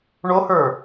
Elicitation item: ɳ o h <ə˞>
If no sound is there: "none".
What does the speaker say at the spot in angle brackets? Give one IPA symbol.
ə˞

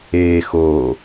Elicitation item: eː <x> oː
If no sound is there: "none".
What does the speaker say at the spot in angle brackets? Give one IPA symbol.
x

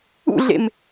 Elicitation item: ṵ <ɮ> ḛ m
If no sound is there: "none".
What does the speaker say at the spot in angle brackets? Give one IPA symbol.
ɮ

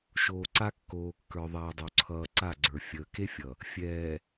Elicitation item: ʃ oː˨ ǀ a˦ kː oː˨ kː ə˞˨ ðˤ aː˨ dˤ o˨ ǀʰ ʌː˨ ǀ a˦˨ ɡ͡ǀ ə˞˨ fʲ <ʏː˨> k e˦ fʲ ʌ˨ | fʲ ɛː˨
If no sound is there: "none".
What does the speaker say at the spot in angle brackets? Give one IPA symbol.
əː˨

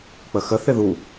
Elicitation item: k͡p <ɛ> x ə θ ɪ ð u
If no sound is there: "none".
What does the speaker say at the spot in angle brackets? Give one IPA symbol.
ə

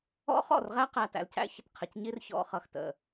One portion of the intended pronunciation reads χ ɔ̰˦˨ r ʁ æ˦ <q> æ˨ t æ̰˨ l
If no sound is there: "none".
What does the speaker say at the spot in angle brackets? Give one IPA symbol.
q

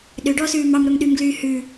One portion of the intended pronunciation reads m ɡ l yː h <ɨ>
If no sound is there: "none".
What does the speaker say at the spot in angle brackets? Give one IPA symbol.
ʉ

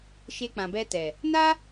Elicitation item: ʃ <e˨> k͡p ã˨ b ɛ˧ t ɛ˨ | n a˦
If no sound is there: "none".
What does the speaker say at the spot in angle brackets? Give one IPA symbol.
e˧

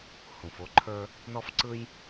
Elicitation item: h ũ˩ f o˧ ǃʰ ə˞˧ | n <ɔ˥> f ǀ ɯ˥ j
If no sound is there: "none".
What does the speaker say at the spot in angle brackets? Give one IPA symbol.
ɔ˥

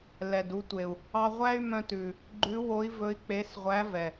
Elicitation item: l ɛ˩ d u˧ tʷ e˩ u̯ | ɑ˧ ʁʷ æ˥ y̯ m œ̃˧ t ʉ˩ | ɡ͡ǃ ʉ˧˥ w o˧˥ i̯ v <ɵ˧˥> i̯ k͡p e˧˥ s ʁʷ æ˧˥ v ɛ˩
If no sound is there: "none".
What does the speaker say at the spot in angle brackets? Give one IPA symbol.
ɵ˧˥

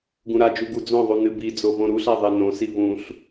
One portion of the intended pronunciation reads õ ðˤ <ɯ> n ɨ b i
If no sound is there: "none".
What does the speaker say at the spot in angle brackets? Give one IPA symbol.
u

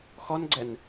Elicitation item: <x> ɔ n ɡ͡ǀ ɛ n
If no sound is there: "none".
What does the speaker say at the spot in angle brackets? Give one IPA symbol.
x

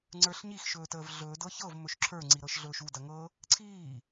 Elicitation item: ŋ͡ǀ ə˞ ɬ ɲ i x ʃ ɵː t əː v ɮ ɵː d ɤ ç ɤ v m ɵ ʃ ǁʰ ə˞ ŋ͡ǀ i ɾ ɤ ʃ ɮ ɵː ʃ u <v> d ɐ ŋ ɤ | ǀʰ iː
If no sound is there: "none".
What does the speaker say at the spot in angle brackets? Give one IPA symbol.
none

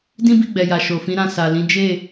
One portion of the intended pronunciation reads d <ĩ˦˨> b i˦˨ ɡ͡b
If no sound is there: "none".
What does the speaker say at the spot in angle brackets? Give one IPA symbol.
ĩ˦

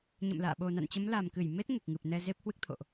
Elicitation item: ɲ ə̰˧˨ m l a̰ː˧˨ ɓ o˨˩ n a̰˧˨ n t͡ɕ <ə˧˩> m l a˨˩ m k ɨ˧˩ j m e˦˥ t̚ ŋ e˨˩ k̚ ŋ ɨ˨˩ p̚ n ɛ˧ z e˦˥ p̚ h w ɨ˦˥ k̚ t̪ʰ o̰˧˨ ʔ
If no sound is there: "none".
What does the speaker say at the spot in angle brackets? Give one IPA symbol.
ə˨˦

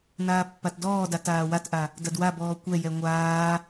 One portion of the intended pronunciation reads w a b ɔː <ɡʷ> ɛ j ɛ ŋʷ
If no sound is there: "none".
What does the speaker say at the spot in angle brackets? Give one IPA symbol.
kʷ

